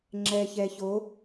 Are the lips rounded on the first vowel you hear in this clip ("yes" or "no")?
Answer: no